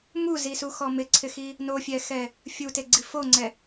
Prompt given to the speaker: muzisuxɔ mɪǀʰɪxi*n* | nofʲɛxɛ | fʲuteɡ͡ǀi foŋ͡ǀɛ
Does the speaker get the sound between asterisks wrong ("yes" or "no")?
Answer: yes